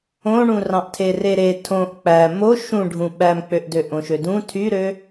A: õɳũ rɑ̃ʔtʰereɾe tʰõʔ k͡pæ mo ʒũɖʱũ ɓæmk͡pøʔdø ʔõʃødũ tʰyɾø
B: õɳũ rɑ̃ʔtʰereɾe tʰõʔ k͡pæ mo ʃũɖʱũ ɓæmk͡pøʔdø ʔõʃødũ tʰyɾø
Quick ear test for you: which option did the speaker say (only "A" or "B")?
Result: B